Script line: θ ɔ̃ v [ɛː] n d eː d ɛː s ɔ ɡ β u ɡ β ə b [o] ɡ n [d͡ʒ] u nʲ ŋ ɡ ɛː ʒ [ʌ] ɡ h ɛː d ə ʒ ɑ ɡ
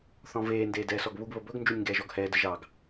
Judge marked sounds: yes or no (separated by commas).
no, no, yes, no